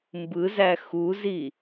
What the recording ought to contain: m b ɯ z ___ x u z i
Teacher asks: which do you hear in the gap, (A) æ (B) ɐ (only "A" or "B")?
A